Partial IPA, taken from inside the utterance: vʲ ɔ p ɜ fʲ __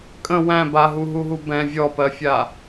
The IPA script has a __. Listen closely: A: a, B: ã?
A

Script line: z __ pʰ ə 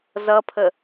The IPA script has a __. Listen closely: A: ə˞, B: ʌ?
B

